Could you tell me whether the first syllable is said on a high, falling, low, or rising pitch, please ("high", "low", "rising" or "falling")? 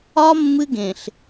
high